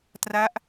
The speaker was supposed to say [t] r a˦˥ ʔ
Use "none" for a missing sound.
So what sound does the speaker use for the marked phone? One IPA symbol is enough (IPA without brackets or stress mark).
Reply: t